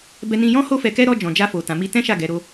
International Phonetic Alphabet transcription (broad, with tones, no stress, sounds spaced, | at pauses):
b ɛ˧ n ĩ˧ j ɔ̃˦ h o˦ f ɛ˧ k ɛ˦ ɾ ɔ˧ d͡ʒ ɔ̃˨ d͡ʒ a˧ f o˨ t ã˨ m i˧ t ɛ̃˦ ʃ a˦˨ ɡ ɛ˨˦ ɾ o˦